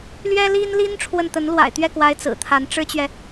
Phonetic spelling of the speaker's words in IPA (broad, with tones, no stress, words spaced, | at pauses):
lɥɛ˥li˥nli˥n ʈ͡ʂʰwə˥˩n t̪ə˧˥nlwa̰˨˩ɪ̯t̪ɥɛ˥˩kwa˧˥ɪ̯ t͡sɹ̩˨˩t̪ʰa˧˥n ʈ͡ʂɻ̩˥t͡ɕɥɛ˨